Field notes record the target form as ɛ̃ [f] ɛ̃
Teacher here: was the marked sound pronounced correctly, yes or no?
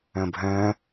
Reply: no